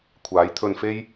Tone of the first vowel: rising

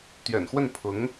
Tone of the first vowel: low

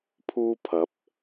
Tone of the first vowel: high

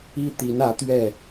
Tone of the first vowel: high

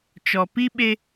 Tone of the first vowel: low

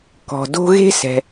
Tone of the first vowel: low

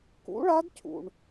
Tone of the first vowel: rising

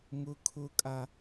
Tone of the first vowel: high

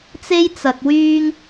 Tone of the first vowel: high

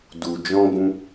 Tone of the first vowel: low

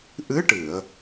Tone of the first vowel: rising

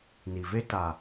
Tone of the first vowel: low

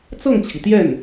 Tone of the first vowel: falling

